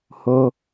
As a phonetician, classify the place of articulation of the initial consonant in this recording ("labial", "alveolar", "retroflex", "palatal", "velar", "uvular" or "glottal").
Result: glottal